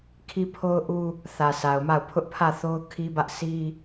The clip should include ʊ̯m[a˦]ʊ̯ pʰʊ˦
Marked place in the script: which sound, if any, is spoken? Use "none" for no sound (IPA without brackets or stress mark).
a˦˨